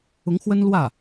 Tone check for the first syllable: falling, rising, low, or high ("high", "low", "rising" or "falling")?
rising